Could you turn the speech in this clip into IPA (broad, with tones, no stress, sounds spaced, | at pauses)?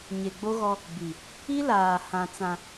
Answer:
ɲ e˨ ɡ͡b o˦ ɣ ɔ˦ | b i˨ | i˦ l aː˨ h ã˨ t͡s ã˨